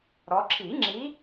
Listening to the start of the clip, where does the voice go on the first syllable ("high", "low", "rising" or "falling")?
rising